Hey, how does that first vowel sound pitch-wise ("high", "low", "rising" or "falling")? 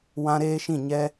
high